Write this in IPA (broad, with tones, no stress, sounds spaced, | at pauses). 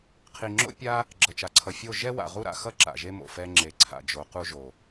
qʰ i˨ ŋ͡ǁ o̰˦ pʲ a˦ | ɡ͡ǁ ʌ˨ t͡ʃ a˨ ǀʰ ʌ˨ fʲ o˦˨ ʒ ɛ˦ w a̰˨ ʁ u˦ ɾ a̰˧ x ʌ˦ ǁ a̰˨ ʒ e˦ m o̰˨ f ɛ˧ ŋ͡ǁ e˨ ǀʰ a̰˨ d͡ʒ o˨˦ q u˦ ʒ o˨